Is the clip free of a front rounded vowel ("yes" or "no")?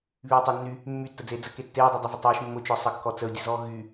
no